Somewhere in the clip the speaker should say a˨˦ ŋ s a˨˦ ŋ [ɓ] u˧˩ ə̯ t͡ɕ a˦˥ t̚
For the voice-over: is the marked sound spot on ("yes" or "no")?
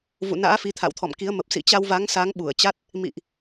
yes